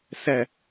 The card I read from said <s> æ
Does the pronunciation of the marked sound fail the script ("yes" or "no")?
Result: no